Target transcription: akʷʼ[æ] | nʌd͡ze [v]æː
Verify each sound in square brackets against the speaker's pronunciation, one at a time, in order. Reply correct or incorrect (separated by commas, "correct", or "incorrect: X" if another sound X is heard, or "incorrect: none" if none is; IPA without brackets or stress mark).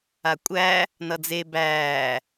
correct, incorrect: b